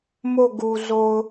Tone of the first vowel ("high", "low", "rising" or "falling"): falling